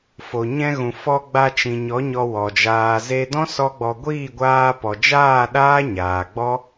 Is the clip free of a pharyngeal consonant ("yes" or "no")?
yes